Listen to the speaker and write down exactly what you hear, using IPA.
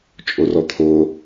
t͡ʃʼ o r ɔ t̪ʰ o

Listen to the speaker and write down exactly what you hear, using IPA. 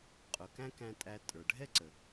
qʼ ʊ˩ k æ̃˥ k æ̃˧ tʼ æ˧ tʼ ə˞˩ ɖʱ ɛ˥ ǀ ə˩

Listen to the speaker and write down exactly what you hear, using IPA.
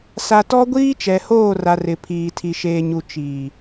s a˨ t ɔ˦ ɡʷ iː˦ t͡ʃ ɛ˨ h oː˦˨ r a˨ r ɪ˨ pʰ iː˨ tʰ i˨ ʃ eː˨ ɲ u˨ t͡ʃ iː˨

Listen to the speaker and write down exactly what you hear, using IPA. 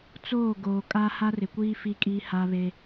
t͡s oː˦˨ ɡ oː˨ kʼ a˦ h a˦ r ɪ˨ kʷ iː˦ f i˦ kʼ i˦ h a˦ β e˦

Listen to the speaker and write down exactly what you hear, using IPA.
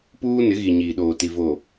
p uː˦ n ɪ˨˦ ɣ i˨ ɲ iː˨ ɗ oː˨ t i˨ v o˨

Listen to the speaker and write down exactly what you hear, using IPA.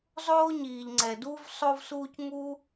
zˤ oː˥ ɲ iː˧ ʎ ŋ͡ǀ ɛ˧ d uː˥ v sˤ o˥ v s uː˥ c ŋ u˥

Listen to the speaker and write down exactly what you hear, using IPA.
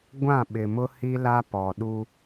ɡʷ ã˦˨ ɓ ɪ˨ m ʊ˦ h i˦ l a˦ p ɔ˨ ɗ u˦

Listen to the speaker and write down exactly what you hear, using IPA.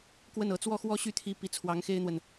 k w ə˥˩ n ɤ˧˥ t͡s w ɔ˥˧ x w ɔ˥˧ ɕ y˥˩ t̪ʰ i˧˥ p i˧˥ t͡sʰ w ɑ˧˥ ŋ x e˥ ɪ̯ n̪ w ə˨ n

